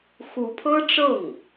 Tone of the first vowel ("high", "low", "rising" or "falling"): rising